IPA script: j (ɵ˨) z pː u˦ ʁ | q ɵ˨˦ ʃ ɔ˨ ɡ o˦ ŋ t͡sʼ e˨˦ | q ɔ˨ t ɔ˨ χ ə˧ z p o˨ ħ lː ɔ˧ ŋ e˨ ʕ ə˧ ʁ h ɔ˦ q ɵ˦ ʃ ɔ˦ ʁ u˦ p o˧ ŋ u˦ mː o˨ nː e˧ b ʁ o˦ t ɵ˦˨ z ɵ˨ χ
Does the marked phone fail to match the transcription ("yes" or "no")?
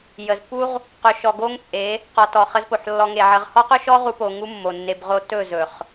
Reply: yes